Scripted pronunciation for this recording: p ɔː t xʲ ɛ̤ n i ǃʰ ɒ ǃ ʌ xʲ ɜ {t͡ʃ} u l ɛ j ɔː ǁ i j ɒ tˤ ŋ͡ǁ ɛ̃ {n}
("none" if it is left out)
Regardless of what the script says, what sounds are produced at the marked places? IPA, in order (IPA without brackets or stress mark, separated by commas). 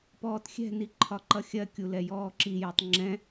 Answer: kʲ, none